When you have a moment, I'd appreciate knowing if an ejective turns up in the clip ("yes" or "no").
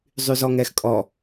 yes